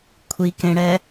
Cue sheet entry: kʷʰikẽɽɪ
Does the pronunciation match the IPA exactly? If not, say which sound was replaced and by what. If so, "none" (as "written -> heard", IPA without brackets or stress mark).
ɪ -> ɛ